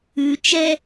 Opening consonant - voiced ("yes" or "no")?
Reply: no